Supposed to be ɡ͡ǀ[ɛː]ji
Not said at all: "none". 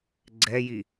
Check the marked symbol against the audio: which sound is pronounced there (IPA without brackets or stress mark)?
ɛ